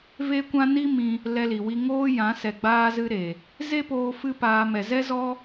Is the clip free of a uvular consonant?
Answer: yes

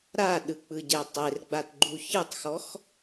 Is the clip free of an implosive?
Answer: no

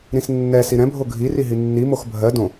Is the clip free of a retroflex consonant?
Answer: yes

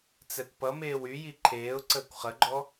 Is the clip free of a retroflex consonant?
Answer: yes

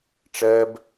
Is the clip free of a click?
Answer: yes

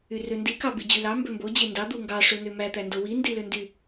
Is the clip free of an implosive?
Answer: yes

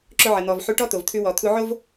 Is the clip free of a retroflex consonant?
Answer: no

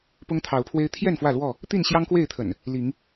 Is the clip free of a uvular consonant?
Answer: yes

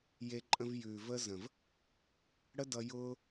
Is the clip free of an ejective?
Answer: no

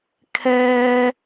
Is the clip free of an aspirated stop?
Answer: no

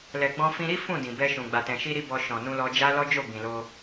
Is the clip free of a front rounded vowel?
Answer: yes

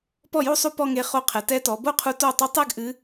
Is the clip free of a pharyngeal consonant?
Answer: yes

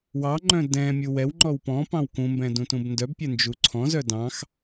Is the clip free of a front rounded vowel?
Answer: no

